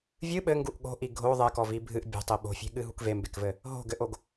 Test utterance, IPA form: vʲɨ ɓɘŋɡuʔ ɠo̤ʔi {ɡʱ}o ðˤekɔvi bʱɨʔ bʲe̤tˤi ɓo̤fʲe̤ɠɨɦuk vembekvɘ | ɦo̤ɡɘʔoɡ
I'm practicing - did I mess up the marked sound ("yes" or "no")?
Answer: no